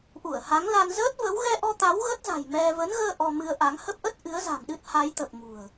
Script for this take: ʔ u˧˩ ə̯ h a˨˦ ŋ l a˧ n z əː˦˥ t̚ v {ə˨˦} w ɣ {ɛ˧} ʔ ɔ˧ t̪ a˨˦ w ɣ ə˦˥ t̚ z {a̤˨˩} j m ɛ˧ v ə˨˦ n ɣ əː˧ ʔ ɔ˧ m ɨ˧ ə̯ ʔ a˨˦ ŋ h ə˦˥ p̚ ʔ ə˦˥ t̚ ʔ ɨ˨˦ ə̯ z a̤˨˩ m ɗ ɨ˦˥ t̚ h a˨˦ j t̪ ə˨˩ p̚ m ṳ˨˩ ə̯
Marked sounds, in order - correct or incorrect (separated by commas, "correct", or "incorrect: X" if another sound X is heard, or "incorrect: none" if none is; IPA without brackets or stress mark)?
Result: correct, correct, correct